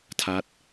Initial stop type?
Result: aspirated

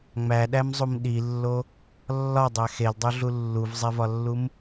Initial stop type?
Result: implosive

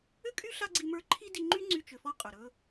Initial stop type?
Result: ejective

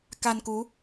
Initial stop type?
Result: plain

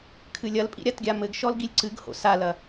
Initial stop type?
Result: aspirated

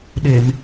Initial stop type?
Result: implosive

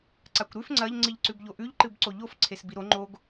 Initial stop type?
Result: click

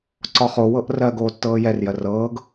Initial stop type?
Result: click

